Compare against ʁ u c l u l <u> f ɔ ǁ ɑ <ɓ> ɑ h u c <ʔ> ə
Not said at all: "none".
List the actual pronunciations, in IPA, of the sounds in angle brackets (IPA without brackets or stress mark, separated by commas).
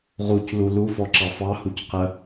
u, f, q